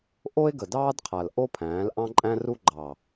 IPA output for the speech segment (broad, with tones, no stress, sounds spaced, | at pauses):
ʔ o˦ e̯ ɡ ə˨ d ɑː˦ d qʰ a˨ l ʔ o˦ pʰ æ̃ː˨˦ l ʔ ɑ̃˦ ǃʼ æ̃˦ r u˦ ɡ͡ǃ ɑ˨